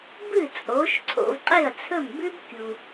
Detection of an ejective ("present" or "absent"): present